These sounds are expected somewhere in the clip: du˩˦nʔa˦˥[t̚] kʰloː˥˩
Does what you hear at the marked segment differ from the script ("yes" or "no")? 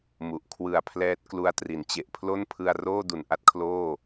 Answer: no